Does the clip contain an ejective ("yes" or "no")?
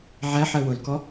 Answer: no